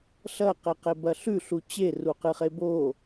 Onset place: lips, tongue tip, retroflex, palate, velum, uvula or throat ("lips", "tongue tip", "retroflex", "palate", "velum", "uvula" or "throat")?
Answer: tongue tip